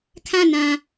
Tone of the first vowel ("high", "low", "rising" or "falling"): falling